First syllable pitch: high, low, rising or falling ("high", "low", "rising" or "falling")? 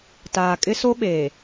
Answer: low